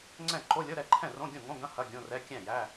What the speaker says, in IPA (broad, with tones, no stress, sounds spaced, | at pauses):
ŋ͡ǀ ɛ̃˥˩ ǃ o˧˥˧ lʲ ɤ˧˥˧ ɾ ɛ˥˩ ǃʰ ɛ̃˥˩ r õ˧˥˧ ɡʲ õ˥˩ ŋ õ˧˥˧ ɡ ɐ̃˧˥˧ h ɐ˧˥˧ ɡʲ õ˧˥˧ r ɛ˧˥˧ kʲ æ̃˥˩ j æ˧˥˧